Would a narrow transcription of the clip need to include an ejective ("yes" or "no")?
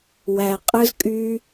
yes